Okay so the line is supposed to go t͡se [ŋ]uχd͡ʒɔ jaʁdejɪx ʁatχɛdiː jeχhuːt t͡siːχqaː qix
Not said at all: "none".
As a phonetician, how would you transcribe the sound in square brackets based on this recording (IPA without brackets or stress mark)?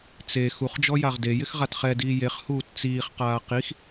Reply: x